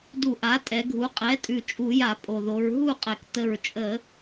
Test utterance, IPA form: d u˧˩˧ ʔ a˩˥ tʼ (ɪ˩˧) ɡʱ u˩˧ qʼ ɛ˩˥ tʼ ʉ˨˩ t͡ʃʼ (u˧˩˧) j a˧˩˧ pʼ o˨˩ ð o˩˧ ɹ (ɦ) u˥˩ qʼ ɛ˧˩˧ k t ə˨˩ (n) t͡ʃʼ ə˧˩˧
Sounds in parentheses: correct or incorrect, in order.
incorrect: ɛ˩˧, correct, correct, incorrect: ɹ

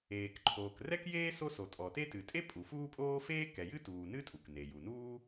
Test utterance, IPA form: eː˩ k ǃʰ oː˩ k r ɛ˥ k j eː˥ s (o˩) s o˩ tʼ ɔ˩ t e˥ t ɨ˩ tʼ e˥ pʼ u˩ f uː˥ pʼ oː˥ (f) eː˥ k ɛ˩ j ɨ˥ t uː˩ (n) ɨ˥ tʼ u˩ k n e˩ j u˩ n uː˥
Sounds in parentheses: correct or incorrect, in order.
incorrect: o˥, correct, correct

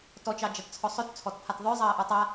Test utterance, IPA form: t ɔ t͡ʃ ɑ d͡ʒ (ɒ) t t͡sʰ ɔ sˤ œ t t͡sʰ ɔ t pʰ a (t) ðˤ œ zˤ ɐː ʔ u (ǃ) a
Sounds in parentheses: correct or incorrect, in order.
incorrect: ɑ, correct, incorrect: tˤ

